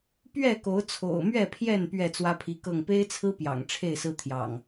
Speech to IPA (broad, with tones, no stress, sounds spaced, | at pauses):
p ɥ ɛ˥˨ k o˨˦ ʊ̯ t͡sʰ o̰˨˩ ʊ̯ m ɥ ɛ˥˨ pʰ j ɛ˥˨ n p ɥ ɛ˥˨ t͡s w ä˦ pʰ i˨˦ k ɤ˥˨ ŋ p e˦ ɪ̯ t͡sʰ ɹ̩˦ p j ɑ̰˨˩ ŋ ʈ͡ʂʰ e˥˨ ɪ̯ s ɹ̩˦ t̪ʰ j ɑ̰˨˩ ŋ